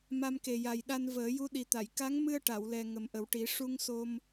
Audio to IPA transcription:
m a˧ m k e˨˩ j a˨˩ j ɗ a˧ n v əː˨˩˦ j u˧˥ ɗ i˨˩ t̪ a˨˩˨ j k a˧˥ ŋ m ɨ˧ ə̯ ʈ a˨˩˨ w l ɛ˨˩ ŋ ə˨˩ m ʔ ə˨˩˦ w ʈ i˨˩˦ ʂ u˧ ŋ s o˧ m

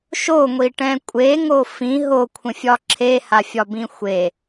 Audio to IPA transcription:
ʃ o ŋʷ i ʈ ɛ̃ kʷʼ e ŋ o f ĩ ɦ o kʷʰ ə̃ fʲ ɒ ǁʰ e h a fʲ ɒ b ĩ xʷ e

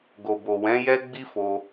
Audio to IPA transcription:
ɡ o˨ b o˨ w ɛ̃˨˦ j ɛ˦ ɡ͡b i˦ f o˧

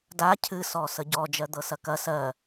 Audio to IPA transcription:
d a cʰ ɨ s ɔ s ə ɟ ɔ d͡ʒ ɜ d̪ ɤ s ɐ k ɐ s ɜ

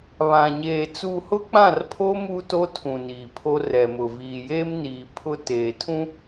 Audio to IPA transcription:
β ã˨ ɲ eː˨ t͡s u˨ h ʊ˦ k͡p ã˦˨ r pʰ o˦ m uː˦ t o˦ tʰ ũ˨ n iː˨ pʰ o˦ r ɛ˨ m ʊ˨ v iː˨ j eː˦ m n iː˨ pʰ ʊ˦ t eː˨ tʰ ũ˦

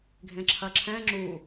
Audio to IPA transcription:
ɡʱ ẽ ǁʰ ɐ ǁʰ ɛ̃ ŋ͡ǁ u

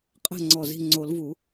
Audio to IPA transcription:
qʼ ɛ̤˥˩ ŋ͡ǀ ɔ˧˩ z i̤˥˩ ŋ͡ǀ o˨˩˦ l v u˨˩˦

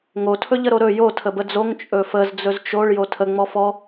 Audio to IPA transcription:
ŋ o tʰ ɵ ʎ ə ɾ o ɾ ɵ j o tʰ ə b ə d͡z o ŋ t͡ʃʼ ɵ f ə z d͡z ɵ z t͡ʃ o ɭ j o tʰ ə ŋ͡m ɔ f ɔ

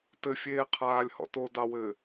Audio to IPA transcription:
t ɘ fʲ eː qʰ aː lʲ h ɔ̰ t o d ɑ w ɘ

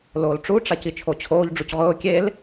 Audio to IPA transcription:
l oː l ʈ͡ʂ u ʈ͡ʂ a c i t͡ʃʰ o t͡ɕʰ oː ʎ ɖ͡ʐ u c ʁ ʊː kʲ e l

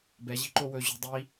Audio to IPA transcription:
b ɛ ʑ i̤ ǃ o w ɵ ʑ ṳ dˤ i

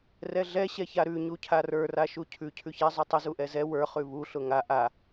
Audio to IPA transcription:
r ɛ ɮ ɛ ɕ ɛ ç a ɾ ʉ ɲ u cʰ a r ə˞ r a ʃ u cʰ ʉ cʰ ʉ ç ɛ zˤ u tˤ ʊ z u ʔ ɛ z ɛ w ə˞ χ ʉ β u ɬ ʊ ŋ a ʔ a

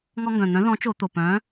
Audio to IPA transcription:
ŋ ɔ˧ ŋ ɡ œ̃˨˩ n̪ œ̃˨˥ ð ɔ̃˨˥ t͡ʃ o˧˩˧ t̪ o˨˩ p œ̃˨˥

